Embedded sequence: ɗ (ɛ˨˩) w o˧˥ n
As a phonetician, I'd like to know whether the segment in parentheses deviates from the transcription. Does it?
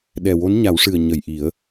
no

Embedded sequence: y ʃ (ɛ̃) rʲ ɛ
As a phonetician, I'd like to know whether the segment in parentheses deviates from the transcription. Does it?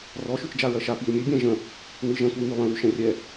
no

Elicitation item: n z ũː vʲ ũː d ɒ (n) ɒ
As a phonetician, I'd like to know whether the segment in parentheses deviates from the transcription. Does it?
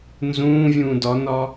no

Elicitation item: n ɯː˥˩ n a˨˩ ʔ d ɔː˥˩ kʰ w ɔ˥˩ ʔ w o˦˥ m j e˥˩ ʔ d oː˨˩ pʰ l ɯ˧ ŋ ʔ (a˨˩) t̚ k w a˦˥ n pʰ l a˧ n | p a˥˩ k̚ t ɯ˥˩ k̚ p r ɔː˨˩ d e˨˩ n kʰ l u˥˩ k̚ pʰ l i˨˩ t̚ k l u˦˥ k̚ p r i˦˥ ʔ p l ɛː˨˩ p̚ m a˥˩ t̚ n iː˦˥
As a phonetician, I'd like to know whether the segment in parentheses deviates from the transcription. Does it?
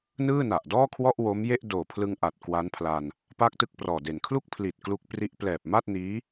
no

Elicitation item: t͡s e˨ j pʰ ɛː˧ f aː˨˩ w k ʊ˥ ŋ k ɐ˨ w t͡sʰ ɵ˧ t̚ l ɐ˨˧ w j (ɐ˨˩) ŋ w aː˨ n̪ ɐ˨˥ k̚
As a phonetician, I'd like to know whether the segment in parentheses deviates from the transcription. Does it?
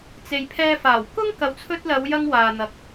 yes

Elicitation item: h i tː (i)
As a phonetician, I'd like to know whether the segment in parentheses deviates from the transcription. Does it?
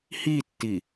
no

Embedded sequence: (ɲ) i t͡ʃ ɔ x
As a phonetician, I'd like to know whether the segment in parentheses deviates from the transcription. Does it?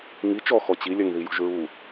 yes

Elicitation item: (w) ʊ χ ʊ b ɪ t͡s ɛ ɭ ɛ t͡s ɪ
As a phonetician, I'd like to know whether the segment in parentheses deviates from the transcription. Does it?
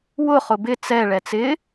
no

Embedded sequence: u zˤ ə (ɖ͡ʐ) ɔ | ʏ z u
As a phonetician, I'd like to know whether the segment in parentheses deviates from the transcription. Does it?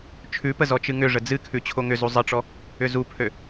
yes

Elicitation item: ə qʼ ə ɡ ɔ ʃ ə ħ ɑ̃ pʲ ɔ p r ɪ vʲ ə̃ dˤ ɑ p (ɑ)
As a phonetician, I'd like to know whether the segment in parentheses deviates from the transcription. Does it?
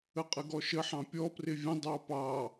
no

